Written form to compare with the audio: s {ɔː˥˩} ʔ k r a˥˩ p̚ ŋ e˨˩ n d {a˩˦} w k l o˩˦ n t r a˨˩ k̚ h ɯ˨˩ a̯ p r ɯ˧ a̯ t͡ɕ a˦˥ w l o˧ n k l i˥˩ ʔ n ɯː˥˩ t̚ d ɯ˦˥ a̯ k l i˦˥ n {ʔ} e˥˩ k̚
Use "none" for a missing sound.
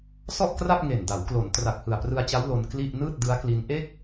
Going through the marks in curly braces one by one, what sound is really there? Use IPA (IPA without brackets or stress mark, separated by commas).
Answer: ɔ˥˩, a˩˦, ʔ